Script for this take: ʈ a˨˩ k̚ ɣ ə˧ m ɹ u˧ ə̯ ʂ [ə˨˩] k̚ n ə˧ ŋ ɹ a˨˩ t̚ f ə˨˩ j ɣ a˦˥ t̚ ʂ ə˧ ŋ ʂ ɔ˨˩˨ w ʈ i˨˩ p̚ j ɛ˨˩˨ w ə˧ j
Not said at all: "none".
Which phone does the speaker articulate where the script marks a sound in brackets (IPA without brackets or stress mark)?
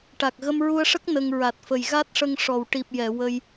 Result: ə˦˥